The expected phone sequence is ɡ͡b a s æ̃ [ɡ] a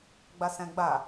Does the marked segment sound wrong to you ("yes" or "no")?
yes